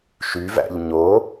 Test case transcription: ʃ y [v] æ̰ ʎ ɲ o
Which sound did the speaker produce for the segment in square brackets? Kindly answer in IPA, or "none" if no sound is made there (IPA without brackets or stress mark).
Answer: v